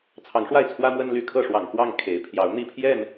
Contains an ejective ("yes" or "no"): no